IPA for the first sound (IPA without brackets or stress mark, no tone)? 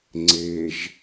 ŋ͡ǀ